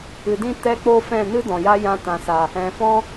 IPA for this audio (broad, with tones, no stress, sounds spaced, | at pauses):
ɨ˨ d ĩ˦ t ɛ˧ k͡p o˧ f ɛ̃˦˨ n ɨ˦ d ɔ̃˨ j a˦ j ã˧ t ã˨ s a˨ | ɛ̃˨ f ɔ̃˦